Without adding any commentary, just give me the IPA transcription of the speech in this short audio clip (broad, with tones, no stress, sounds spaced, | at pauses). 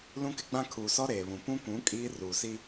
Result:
l ũ˦ k ɪ˦ ɡ͡b ã˦ kʰ uː˨ s ɔ˦ ɾ eː˨ β ũ˨ p ũ˦ kʷ ũ˨˦ kʼ iː˦ r uː˨ s i˦